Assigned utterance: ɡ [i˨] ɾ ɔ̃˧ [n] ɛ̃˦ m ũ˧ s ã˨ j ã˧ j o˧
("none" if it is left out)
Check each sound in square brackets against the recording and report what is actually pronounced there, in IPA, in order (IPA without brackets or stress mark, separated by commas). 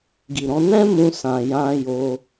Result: i˨, n